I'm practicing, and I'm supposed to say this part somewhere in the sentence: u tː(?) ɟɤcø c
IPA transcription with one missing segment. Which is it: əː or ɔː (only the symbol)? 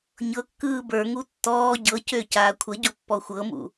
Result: ɔː